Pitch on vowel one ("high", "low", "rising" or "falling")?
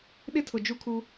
high